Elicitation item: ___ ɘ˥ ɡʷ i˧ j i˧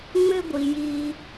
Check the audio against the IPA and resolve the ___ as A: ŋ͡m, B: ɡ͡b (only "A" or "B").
A